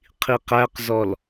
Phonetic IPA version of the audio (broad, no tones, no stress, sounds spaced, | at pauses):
qʰ i q æ q z ɔ l